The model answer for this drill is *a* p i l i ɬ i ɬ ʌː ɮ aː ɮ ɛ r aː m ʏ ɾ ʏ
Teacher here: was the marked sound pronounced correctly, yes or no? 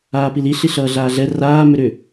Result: no